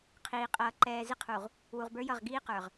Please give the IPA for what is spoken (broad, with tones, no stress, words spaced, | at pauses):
qʰiː˨qʼʌː˨ ǃɛː˨zɪ˦qʰu˨ʁ | wu˨ʁbə˞˦jʌ˦˨ʁ ɡiː˦qə˞˨ʁ